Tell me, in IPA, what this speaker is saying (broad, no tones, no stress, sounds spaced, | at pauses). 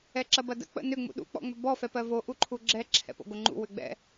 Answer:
ɛ ǁ ɐ b ɐ d ə̰ k͡p ə̰ n ʏ ŋ͡m ṵ ɗ ṵ k͡p ɔ̰ ŋ͡m ʏ b ɔ f ɛ p ɜ v o ʔ u ǃʰ u ɡ͡ǁ ɛ ǁʰ ɛ̰ p o̰ ɡ o ŋ͡ǃ ṵ w ʏ ɡ͡b ɛ̰